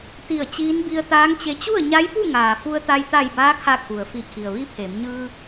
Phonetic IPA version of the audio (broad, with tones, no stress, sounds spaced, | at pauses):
t̪ i˧˩ ə̯ t͡ɕ iː˧˥ n b i˧ ə̯ t̪ aː˧˥ ŋ t͡ɕ e˧ t͡ɕ u˥˨ ə̯ ɲ a˧˥ j p u˥˨ ŋ aː˩ f u˧ ə̯ t̪ a˧ j t̪ a˧˩ j b aː˧˥ kʰ a˧˩ kʰ u˩ ə̯ f i˧˩ kʰ i˩ ə̯ ʋ i˧˥ pʰ e˩˧ m ɲ ɯː˧